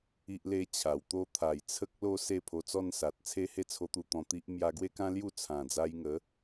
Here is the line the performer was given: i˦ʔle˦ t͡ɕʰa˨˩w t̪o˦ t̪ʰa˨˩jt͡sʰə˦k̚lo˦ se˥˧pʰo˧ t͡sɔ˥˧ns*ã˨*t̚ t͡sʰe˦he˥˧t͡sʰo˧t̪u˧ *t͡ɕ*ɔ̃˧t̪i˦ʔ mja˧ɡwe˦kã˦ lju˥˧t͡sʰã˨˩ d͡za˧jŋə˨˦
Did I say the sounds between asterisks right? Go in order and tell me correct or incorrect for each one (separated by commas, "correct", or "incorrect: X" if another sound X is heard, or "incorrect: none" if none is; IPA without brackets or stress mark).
incorrect: a˨, incorrect: t̪